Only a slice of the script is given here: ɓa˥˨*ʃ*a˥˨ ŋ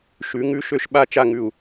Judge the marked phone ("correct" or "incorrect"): incorrect